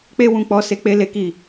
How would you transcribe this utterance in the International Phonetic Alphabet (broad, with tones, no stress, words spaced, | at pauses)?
k͡pe˦wũ˧k͡pɔ˧ se˦k͡pe˦le˦ki˦˨